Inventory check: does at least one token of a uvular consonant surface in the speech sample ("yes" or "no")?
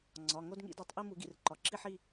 no